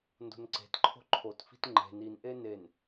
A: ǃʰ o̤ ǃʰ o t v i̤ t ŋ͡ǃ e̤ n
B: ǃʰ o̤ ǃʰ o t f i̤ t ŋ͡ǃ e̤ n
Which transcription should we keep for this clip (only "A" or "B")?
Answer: B